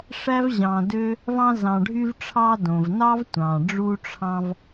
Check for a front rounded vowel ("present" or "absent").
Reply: present